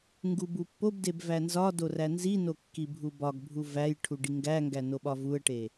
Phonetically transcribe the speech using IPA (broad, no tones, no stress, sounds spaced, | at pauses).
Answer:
ŋ ɡ u b u pː o b d e b v æ n z ɒ d o r æ n z i n o kː i bʱ u b ɒ ɡ bʱ u v æ j ʈʰ u ɖ i ŋ ɡ æ ŋ ɡ æ n o ɓ ɒ v u ə̯ ʈ e